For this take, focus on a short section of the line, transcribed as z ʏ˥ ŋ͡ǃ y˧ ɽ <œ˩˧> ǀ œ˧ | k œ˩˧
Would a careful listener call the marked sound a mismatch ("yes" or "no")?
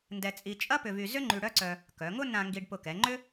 yes